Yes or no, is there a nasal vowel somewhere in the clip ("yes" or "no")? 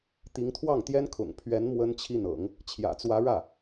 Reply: no